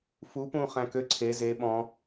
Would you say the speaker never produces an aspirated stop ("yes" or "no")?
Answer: no